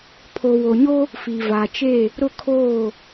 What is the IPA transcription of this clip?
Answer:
pʰ o˨ w o˨ ɲ o˦ | f i˨ v a˨ t͡ʃ e˦˨ | ɾ ʊ˦˨ kʰ oː˦˨

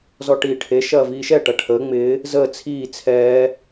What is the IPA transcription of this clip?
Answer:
z ɔ ʈ iː ʈʰ e ʃ ɐː v iː ʃ ɛ ʈ ɐ ʈʰ əː ŋ͡m ɪː | z əː t͡sʰ iː t͡sʰ ɛː

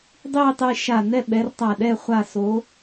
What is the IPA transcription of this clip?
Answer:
dˤ iː˥˧ tˤ e˥˧ ʃ a˧˩ n ɛ˥˧ ɓ ɛ˨˦ r tˤ a˧˩ ɗ ɛ˥˧ χʷ a˧˩ s o˨˦

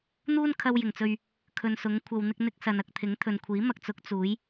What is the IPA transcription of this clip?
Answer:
n̪ uː˥ n kʰ ɐ˧ w j ɪ˨˩ ŋ t͡s ɵ˨ ɥ | kʰ ɵ˨ n s ʊ˨˥ ŋ kʷʰ ɐ˨ w n̪ ɪ˧ k̚ n̪ ɪ˧ k̚ s ɐ˨ n ɐ˨ k̚ t̪ʰ ɪ˨˥ ŋ t̪ʰ ɵ˨ n kʷʰ iː˨˥ m ɐ˧ k̚ t͡s ʊ˨˥ k̚ t͡s uː˨˥ j

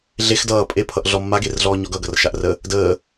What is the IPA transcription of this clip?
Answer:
ɮ e x d ʌː pʼ e pʰ ʌ ʔ ɮ ɔ mː a ɡ e r ɮ ɔː ɲ ɔ ɡ ʌ ɡ ʌ r ʃ a ʔ r ə | d əː

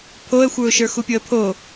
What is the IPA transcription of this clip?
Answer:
pʰ o ə̯ xʷ ə˞ ʊ̯ ʃ ə˞ x u pʲ o ə̯ pʰ o

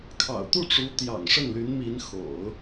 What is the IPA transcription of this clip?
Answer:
kʰ ɑ̰˨˩ ʊ̯ t̪ u˥˩ ʈ͡ʂ u˧˥ t̪ j ɑ̰˨˩ ŋ ʂ ə˥˩ n l y˧˥ n m i˧˥ n x o̰˨˩˦ ʊ̯

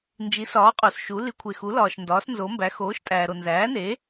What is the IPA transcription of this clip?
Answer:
n d͡ʒ i˩˥ s ɒː˩˥ qʼ o˩ s ʃ u˩˥ l i˩˥ kʷʰ e˩ x u˩˥ l ɒː˩ ʃ n d ɒː˩˥ s n z o˩˥ m b æ˩˥ x oː˩˥ ʃ tʼ æː˩ ɾ o˩ n z æː˩˥ n e˩˥

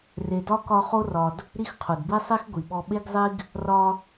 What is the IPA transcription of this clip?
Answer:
r e˨ d ɒ˥ k ɒ˦ χ o˥ r ɒ˨ d | ɾ i˦ x qʰ o˩ d b i˥ sˤ i˥ x ɡʷ i˩ ɓ ɔ˦ ɓ e˥ ɡ zˤ i˥ ɡ | r ɒ˦

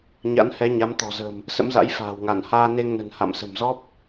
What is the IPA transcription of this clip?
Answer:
ɲ a̰˧˥ n h ɛ˨˦ ɲ a˨˦ m t̪ ɔ̤˨˩ z ə̤ː˨˩ m | s ə̰˧˥ m z a̰˧˥ j f a̤ː˨˩ w ŋ a˧˩ n h aː˧ n e˧ ŋ n ə̤˨˩ n h a̰˧˨ m s ə̤˨˩ m z ɔ˦˥ p̚

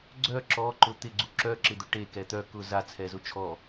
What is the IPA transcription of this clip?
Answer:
ɡ͡ǀ œ ǁ ɔ ǃ ʊ t̪ ɪ ɡ͡ǀ u ǁ œ ǁ ɪ d̪ ʊ ʈ e k ɛ t̪ œ k ʊ z a t͡sʰ ɛ z ʊ t͡ʃʰ ɔ

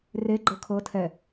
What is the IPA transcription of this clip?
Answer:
r e ɡ͡ǃ ɤ kʰ ɤ tʰ ɛ

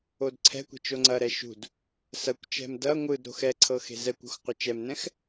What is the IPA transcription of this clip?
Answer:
o d ǀʰ ɛ̤ kʷ e̤ t͡ʃ o ŋ͡ǀ ɐ ɾ ɛ ʃ ṳ d | s ɐ kʷ t͡ʃ ɛ̤ m d ɐ ŋʷ ɯ d ɾ o̤ x ɛ ǀʰ ɤ x e̤ z ɛ kʷ ṳ x qʷ ɤ t͡ʃ ɛ m n ɛ̃ x

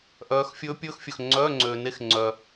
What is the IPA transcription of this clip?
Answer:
ʔ œː˨˦ x fʲ ɵː˦˥ pʲ ɵː˦˥ x fʲ ɵ˨ x ŋ͡ǀ œː˧˥˧ ŋ͡ǀ øː˨ n e˧˥˧ x ŋ͡ǀ œ˨

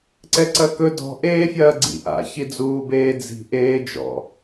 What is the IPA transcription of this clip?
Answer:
ǀ ɛ ǀ ɐ k ɵ d ɔ̤ ʔ eː fʲ ɐː ɡ͡ǀ ḭ ʔ a̰ ç i d͡z uː b eː d͡z i̤ ʔ eː d͡ʒ ɔ̰

